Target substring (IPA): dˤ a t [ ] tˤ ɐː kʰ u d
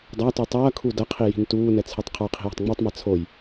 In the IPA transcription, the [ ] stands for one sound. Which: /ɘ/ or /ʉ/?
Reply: ʉ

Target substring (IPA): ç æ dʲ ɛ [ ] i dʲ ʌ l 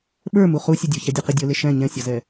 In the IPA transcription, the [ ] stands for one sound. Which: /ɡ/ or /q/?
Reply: q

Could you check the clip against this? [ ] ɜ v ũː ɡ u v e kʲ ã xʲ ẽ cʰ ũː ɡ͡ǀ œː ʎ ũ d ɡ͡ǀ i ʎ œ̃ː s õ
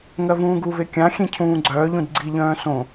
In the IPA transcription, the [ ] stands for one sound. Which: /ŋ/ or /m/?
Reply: ŋ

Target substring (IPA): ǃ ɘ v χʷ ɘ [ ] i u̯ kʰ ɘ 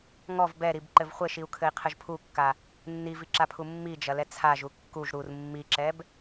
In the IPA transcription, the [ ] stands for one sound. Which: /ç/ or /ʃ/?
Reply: ʃ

